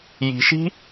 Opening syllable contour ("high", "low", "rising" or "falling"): low